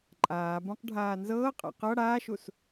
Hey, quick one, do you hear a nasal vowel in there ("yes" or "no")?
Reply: yes